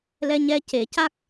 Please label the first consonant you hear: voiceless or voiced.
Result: voiced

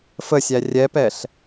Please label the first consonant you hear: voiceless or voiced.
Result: voiceless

